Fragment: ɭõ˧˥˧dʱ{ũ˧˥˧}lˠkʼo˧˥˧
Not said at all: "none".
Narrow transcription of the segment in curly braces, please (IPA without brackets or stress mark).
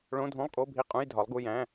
ũ˧˥˧